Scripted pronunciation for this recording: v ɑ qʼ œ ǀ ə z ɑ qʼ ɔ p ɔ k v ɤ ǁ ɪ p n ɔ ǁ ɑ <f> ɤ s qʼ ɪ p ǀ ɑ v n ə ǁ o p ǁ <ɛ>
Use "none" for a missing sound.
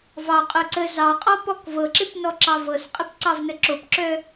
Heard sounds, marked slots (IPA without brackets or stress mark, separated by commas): v, œ